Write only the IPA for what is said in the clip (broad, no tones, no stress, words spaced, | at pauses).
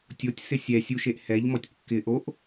tʲotʲsɪ sʲɛsʲuʃeʔ hɛʎmɔtʲ kːɪ ʔoʔ